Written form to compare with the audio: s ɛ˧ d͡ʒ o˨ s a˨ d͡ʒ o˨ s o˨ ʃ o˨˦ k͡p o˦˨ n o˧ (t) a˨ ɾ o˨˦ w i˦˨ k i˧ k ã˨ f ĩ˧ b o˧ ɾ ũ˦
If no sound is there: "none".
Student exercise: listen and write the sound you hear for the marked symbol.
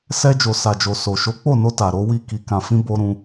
t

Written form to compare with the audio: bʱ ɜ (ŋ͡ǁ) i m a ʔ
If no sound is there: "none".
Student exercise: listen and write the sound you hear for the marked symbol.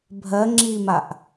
ŋ͡ǁ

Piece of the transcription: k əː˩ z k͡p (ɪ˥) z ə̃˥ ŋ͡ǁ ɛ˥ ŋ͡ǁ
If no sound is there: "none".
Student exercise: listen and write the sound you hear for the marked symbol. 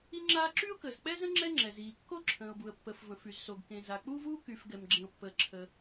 ɛ˥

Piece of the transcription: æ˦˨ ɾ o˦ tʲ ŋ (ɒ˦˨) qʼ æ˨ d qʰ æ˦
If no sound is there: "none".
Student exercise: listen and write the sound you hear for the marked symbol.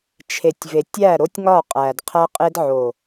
ɒ˦˨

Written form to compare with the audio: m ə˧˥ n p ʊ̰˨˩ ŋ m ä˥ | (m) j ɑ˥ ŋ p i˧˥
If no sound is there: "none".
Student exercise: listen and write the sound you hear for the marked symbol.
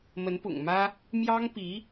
m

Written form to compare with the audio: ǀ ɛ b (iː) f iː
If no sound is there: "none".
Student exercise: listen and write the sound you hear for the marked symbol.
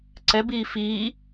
iː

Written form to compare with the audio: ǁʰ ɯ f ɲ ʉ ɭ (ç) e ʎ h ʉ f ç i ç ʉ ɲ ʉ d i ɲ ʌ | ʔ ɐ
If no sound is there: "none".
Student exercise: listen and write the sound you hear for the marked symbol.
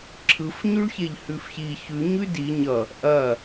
ç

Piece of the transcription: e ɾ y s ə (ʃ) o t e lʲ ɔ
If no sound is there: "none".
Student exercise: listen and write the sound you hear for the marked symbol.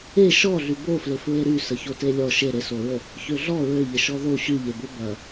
ç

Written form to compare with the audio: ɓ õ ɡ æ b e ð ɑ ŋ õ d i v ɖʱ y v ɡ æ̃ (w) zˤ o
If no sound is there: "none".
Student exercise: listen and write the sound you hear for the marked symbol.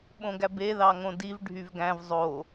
v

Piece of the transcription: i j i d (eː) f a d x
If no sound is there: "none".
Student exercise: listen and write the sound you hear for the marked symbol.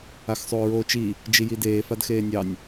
eː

